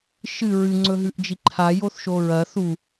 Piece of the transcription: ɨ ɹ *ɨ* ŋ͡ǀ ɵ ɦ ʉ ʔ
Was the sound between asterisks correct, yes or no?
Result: yes